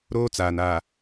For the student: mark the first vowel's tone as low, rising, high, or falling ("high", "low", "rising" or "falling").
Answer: high